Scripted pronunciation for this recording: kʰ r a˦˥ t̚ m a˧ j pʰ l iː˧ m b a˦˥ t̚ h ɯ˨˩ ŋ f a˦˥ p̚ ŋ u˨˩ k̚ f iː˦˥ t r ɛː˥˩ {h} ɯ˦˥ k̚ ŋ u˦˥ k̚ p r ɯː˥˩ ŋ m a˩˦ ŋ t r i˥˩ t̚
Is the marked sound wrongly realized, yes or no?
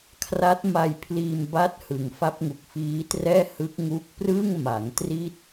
no